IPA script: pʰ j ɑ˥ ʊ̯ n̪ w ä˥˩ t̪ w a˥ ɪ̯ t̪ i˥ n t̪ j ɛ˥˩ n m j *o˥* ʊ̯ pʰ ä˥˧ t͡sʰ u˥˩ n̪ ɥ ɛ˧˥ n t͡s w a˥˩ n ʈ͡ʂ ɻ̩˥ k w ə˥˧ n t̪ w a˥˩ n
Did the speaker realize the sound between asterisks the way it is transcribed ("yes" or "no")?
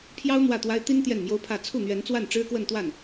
yes